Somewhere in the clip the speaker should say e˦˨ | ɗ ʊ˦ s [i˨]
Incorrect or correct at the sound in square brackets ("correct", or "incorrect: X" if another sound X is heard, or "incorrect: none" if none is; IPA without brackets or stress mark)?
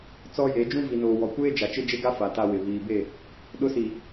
correct